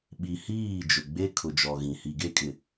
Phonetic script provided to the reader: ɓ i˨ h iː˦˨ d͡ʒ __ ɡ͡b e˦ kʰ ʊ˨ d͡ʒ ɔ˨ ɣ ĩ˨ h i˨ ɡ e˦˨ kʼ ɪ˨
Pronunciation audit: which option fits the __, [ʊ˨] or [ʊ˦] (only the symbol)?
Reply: ʊ˨